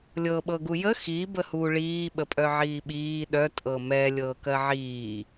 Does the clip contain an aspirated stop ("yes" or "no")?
no